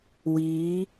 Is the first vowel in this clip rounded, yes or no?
no